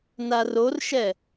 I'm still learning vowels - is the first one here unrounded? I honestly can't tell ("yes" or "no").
yes